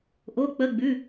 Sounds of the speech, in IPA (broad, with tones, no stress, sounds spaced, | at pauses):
ʔ o˧˥˧ k͡p ə˧˥˧ ɡ͡b ʉ˧˥˧